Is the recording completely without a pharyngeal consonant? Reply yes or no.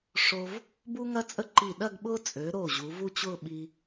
yes